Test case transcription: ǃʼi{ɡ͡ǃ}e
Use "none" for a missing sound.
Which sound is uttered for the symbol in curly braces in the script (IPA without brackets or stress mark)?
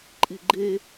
ɡ͡ǃ